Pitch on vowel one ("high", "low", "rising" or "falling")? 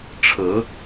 rising